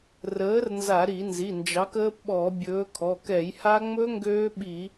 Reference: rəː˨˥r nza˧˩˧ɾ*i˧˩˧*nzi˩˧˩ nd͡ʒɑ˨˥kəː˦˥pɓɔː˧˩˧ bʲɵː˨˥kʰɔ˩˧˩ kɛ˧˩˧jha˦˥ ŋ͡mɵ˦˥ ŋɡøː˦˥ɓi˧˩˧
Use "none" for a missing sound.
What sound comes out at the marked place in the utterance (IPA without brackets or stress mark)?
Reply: i˧˩˧